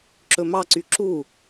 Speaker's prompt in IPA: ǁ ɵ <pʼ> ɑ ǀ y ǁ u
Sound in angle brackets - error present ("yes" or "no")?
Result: yes